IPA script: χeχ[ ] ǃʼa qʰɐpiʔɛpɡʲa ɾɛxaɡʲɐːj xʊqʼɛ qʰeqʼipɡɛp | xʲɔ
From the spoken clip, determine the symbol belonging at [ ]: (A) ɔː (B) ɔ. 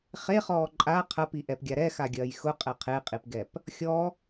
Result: A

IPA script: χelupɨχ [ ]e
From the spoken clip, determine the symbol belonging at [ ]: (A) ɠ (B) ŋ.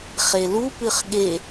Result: A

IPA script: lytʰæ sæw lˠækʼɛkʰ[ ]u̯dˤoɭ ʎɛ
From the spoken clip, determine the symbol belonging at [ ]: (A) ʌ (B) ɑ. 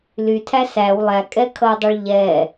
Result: A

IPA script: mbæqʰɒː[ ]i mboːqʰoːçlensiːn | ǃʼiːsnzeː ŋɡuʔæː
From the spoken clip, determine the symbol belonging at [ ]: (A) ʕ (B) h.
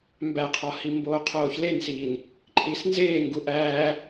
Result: B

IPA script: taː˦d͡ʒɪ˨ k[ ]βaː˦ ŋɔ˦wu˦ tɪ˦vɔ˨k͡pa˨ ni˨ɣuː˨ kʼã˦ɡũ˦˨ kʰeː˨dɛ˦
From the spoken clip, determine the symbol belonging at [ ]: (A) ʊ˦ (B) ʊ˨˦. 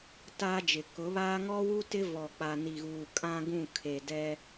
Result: B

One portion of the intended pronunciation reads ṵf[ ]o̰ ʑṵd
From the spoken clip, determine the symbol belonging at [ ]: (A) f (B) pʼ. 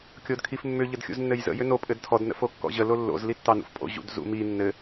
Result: B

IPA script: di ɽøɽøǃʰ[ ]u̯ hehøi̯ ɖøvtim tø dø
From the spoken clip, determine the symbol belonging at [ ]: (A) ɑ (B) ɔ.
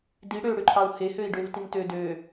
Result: A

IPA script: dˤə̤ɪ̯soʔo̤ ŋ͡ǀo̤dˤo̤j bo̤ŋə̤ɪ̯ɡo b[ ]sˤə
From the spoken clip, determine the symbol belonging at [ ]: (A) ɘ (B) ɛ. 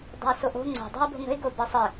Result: A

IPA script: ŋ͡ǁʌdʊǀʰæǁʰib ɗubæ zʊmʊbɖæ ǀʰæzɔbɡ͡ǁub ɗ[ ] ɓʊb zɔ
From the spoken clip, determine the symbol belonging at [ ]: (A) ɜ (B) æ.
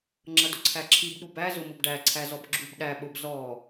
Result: B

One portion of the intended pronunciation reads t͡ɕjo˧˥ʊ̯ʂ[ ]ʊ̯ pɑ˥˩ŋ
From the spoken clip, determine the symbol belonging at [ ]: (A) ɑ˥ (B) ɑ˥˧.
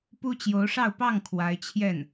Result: B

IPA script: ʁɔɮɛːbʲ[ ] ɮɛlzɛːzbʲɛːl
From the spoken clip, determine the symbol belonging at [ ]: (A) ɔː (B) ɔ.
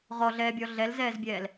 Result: B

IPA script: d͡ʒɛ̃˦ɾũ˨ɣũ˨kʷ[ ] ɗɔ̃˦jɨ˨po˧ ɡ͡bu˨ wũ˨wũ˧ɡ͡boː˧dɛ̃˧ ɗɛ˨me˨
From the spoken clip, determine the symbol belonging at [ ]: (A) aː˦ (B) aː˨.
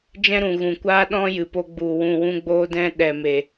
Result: A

